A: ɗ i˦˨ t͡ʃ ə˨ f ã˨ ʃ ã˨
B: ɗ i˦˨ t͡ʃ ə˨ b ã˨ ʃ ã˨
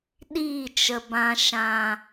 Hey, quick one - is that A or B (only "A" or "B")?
B